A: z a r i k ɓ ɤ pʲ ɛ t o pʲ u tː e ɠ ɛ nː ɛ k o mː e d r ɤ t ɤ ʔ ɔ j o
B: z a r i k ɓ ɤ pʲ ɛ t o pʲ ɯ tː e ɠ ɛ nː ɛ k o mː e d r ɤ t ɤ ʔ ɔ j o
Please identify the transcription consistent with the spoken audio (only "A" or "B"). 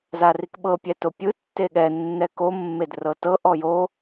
B